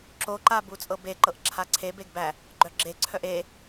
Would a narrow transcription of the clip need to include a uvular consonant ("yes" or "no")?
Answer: no